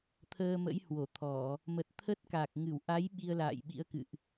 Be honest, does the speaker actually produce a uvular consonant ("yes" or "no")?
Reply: no